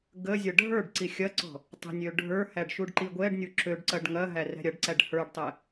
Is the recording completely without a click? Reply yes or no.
no